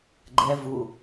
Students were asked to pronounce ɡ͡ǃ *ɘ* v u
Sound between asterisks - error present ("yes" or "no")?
yes